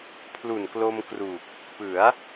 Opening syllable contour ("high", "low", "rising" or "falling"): low